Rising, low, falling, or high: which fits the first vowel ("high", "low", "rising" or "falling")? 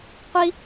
high